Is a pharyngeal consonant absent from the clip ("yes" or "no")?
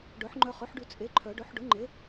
no